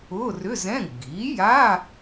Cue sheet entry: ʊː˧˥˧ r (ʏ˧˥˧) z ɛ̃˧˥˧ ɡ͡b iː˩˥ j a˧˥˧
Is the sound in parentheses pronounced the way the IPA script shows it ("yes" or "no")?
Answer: yes